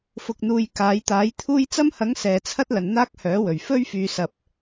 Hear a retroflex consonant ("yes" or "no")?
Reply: no